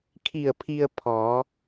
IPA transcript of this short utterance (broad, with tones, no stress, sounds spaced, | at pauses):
kʰ i˧˩ ə̯ pʰ i˧ ə̯ pʰ ɔː˩˧